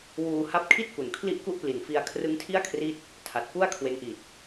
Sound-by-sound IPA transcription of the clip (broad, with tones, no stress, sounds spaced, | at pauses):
w uː˧ h a˦˥ p̚ kʰ i˥˩ t̚ k u˨˩ n kʰ l i˥˩ ʔ k u˥˩ ʔ p l i˨˩ n f i˧ a̯ kʰ r ɯ˦˥ ŋ tʰ i˥˩ a̯ kʰ r i˦˥ t̚ | tʰ a˨˩ t̚ p u˥˩ a̯ kʰ w e˦˥ n ʔ i˨˩ t̚